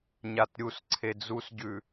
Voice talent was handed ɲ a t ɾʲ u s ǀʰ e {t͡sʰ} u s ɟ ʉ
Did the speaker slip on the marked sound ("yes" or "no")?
yes